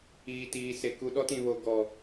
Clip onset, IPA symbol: iː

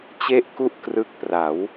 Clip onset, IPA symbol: t͡ɕ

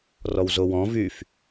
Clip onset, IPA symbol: r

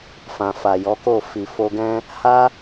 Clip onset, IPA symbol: f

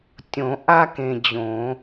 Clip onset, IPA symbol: tʲ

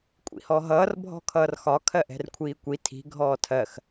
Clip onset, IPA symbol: kʷʼ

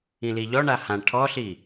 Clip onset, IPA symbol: ĩ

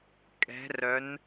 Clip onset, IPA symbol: kʼ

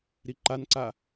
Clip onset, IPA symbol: ɾ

